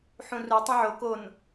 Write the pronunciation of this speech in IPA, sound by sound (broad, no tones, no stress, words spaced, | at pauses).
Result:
ħũru tˤũʕo kon